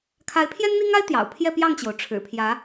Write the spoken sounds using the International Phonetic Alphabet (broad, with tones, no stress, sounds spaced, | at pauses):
kʰ a˧˥ ɪ̯ pʰ j ɛ˥ n n̪ i˥ ŋ a˥ ɪ̯ t̪ j ɑ̰˨˩ ʊ̯ pʰ j ɛ˥˧ p j ɑ˥˩ ŋ t͡ɕ j o˩ ʊ̯ ʈ͡ʂʰ ɻ̩˨˩ pʰ j ä˧˥